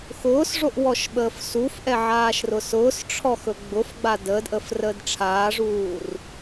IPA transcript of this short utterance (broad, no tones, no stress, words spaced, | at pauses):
xʊːsʐoʔ wɔʃɓəːfsufʔɛ ʕaːʃrʊsʊːsʈ͡ʂʰɔ xɵɡ͡bʊfɡ͡ba dəːdʔəːf rəːdʈ͡ʂʰaːʐuːr